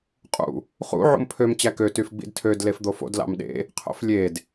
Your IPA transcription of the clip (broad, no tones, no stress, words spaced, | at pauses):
qʼṵ | χṵ ʕṵmpʰøm t͡ɕækø tyfɡ͡bḭdtʰød lefd̪ofo̰d lɑ̰mɗḛ | qʰo̰flʲed